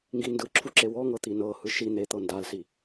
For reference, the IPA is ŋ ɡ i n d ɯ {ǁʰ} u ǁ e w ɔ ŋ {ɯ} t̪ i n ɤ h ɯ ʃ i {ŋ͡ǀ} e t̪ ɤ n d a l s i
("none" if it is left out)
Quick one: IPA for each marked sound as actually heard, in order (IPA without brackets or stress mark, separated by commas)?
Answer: ǁʰ, ɤ, n̪